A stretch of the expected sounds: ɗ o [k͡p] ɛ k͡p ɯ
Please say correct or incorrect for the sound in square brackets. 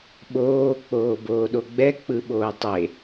incorrect